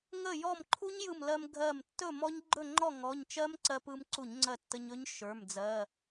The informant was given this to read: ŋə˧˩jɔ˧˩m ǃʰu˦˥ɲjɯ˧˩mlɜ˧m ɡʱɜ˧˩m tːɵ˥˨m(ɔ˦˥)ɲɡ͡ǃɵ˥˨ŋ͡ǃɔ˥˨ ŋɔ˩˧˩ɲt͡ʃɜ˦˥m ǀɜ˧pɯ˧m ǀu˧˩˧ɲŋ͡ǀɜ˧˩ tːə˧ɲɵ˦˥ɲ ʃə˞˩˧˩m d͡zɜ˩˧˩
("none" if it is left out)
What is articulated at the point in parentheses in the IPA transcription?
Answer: ɔ˦˥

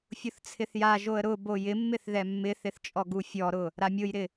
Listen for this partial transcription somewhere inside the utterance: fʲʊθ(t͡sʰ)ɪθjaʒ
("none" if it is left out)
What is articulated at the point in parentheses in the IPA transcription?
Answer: t͡sʰ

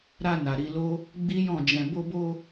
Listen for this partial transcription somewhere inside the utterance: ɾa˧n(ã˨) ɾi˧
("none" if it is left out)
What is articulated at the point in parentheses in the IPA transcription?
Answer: a˨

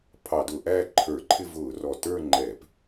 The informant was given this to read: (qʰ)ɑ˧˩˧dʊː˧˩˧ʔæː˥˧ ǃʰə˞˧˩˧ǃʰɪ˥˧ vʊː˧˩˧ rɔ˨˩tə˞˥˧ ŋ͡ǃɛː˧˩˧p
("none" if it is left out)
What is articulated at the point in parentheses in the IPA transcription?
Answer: pʰ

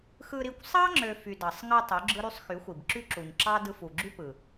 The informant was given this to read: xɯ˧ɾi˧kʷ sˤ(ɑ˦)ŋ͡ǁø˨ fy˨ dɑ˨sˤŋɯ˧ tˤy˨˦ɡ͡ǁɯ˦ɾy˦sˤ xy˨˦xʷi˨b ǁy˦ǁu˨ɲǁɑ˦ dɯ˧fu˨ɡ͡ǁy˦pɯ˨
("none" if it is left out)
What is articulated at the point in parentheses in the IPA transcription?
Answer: ɑ˦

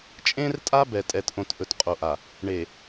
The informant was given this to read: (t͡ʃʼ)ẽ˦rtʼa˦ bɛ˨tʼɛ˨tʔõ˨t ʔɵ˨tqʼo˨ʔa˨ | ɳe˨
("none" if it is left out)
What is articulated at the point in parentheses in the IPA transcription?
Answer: t͡ʃʼ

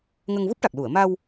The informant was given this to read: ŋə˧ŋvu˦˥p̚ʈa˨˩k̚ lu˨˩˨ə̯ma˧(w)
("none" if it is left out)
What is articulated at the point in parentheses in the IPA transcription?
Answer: w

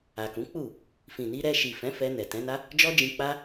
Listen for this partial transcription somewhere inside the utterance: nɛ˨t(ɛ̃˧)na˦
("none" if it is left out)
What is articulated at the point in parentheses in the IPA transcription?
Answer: ɛ̃˨˦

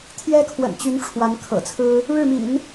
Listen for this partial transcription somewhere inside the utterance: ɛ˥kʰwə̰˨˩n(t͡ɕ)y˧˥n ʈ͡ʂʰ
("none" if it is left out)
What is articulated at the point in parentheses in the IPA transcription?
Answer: t͡ɕ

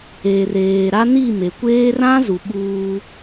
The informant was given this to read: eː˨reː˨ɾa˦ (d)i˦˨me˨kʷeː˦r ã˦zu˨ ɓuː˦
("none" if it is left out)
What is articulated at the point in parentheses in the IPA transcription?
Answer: n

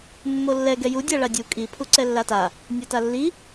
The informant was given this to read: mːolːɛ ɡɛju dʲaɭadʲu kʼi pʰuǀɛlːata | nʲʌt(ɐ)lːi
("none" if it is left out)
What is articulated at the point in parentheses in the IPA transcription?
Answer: a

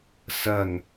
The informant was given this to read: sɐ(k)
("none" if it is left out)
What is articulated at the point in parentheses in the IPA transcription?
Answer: ŋ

